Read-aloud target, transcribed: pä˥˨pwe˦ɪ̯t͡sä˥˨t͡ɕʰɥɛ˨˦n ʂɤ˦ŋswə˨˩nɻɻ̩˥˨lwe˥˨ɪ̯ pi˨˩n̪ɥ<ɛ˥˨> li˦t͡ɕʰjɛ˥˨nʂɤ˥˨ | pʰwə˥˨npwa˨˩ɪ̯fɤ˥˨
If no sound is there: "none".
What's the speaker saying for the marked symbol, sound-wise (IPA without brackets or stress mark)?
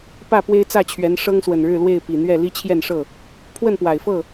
ɛ˥˨